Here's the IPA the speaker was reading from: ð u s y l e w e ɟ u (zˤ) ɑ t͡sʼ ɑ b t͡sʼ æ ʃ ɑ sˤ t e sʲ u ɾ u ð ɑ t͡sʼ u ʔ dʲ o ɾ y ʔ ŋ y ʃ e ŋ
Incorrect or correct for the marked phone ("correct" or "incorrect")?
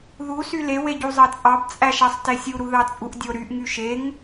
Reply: correct